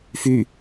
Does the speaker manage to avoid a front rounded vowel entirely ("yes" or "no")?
no